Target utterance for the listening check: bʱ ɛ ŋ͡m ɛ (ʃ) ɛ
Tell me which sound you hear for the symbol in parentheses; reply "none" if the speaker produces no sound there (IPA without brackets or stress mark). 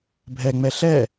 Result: ɬ